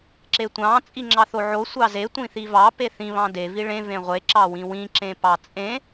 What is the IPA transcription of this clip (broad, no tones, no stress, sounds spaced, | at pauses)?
ǁ e tʷ ɑ̃ t͡sʼ i ŋ͡ǁ ɑ θ o ʕ o sʷ ɑ z e tʷ ĩ θ i v ɑ p e θ ĩ β ɑ̃ d e v i ɭ ẽ v ẽ ʁʷ e ǁ ɑ w ĩ w ĩ ǁ ẽ p ɑ t͡sʼ ẽ